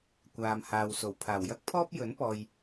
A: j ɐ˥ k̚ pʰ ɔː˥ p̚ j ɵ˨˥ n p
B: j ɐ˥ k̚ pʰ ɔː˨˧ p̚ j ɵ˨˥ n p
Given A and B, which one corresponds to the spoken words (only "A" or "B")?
A